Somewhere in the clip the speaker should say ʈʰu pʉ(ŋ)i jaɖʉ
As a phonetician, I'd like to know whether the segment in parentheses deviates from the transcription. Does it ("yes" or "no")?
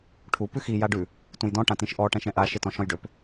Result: yes